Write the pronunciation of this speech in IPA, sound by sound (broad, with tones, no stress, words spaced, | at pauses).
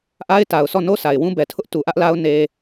ʔa˦ɪ̯ta˨ʊ̯sɔ˦˨no˦ sa˨ɪ̯wũ˦ bɛ˨tʰʊ˦ʔ tu˨ʔä˦ʔla˦ʊ̯ ne˦